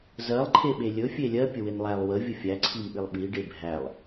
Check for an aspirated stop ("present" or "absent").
present